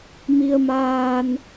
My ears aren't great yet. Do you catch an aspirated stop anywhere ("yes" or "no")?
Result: no